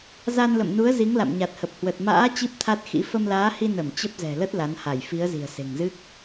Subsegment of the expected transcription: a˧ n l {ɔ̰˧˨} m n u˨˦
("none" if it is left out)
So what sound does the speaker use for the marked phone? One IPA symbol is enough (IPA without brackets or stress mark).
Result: ə̰˧˨